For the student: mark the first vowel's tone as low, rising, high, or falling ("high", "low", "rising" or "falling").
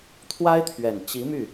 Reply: high